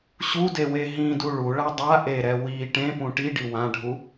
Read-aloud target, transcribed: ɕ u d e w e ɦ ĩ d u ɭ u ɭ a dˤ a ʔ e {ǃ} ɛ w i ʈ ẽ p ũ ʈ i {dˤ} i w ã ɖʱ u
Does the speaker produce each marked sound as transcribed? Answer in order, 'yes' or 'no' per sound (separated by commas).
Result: no, no